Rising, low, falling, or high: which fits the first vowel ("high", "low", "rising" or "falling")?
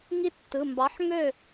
falling